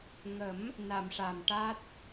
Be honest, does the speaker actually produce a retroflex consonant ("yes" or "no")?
yes